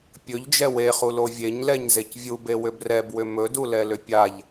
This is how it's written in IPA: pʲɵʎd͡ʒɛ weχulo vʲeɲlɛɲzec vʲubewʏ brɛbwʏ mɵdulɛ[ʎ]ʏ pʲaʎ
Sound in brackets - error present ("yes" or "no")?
yes